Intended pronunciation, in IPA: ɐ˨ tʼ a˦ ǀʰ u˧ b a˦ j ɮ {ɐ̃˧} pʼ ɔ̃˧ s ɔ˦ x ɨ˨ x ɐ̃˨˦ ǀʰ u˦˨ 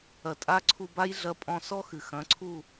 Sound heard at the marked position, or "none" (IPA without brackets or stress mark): ɐ˧